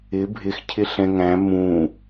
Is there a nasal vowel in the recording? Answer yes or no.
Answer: yes